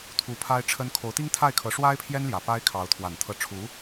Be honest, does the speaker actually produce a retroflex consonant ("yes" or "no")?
yes